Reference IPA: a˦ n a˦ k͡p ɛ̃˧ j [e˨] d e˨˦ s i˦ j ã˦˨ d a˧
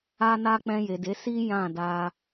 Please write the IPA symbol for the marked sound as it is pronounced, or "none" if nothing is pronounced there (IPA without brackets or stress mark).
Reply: e˨